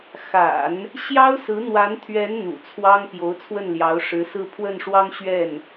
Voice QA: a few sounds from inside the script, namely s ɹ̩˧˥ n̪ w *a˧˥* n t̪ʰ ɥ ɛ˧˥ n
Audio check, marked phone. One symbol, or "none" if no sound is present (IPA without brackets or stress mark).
a˧˥